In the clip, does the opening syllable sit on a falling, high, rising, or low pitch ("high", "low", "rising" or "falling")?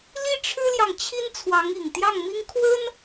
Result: high